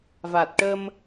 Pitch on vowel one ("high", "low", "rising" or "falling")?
low